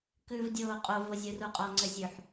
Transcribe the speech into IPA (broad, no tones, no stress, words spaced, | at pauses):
kʉvdʲoː qʼovo zʲuruqʼɔŋ͡ǀɘ zʲʉħ